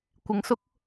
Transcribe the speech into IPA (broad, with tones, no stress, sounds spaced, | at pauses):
kʷ ɪ˧ ŋ s ʊ˥ k̚